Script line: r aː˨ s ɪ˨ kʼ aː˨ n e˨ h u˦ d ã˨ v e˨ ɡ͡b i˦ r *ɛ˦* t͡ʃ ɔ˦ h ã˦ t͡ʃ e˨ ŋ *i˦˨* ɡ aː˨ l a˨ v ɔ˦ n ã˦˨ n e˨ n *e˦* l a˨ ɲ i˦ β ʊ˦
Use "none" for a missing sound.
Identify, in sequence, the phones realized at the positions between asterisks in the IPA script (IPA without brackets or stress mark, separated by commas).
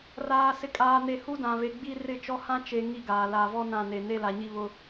ɪ˦, i˦˨, e˦